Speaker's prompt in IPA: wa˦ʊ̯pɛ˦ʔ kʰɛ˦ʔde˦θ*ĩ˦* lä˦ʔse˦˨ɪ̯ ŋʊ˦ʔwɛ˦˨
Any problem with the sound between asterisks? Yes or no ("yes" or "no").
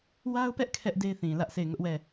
yes